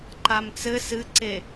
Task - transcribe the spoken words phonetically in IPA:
ǃ a m t͡s ɘ s ɨ ǀ e

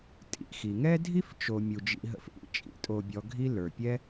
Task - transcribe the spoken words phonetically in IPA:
tʼ ḭ˨ x i˩ ŋ ɛ˥ dʱ i˥ f t͡ʃ o˨ mʲ u˩ d͡ʒ ḭ˨ ɦ ə̰˨ f ʔ ḭ˨ t͡ʃʼ ḭ˥ tʼ o˨ bʲ ɔ˨ ɡʱ i˦ l ə˞˩ pʲ ɛ˦

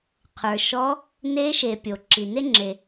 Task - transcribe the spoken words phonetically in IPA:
qʰ ə˞˩ ʃ ɔ˧˥ | n e˧˥ ʃ e˩ pʲ o˩ ǁ i˩ n e˥ ŋ͡ǁ e˩

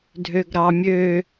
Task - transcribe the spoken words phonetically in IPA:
dʱ ø ɡ ɾ ɑ mʲ ø

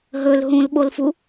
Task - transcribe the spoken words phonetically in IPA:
ɦ ɵ l ɦ ũ l ɓ o l f u

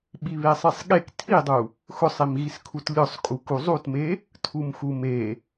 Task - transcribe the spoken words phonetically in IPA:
ɓ i β e sˤ i sˤ ɠ e k tʰ i dˤ u | x ʊ sˤ i m ɣ i s kʰ u t lʲ ʊ sˤ kʼ u k u zˤ u t m e | tʰ u m x u m e

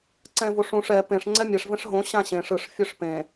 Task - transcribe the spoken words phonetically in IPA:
ǀ ɛ̃ v o ʂ ũ ʂ ɛ p ẽ ʂ ŋ͡ǀ ɛ mʲ ɛ ʂ v ɛ̃ ʂ ɦ õ ɕ ã ɕ ẽ ʂ ɯ ʂ fʲ œ ʂ p ẽ

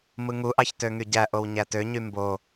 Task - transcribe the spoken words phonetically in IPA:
m ɯ ŋ u ʔ ɑ ç t ø ŋ y ɟ æ ʔ o w ɲ æ t ø ɲ y m b o

